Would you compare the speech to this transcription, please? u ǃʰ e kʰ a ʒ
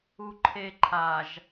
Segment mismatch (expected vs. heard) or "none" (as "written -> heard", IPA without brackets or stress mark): kʰ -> ǃʰ